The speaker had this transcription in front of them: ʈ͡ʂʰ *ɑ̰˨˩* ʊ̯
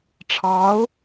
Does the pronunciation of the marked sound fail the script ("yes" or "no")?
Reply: yes